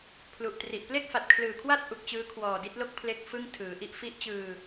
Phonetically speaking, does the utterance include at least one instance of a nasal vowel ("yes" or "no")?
no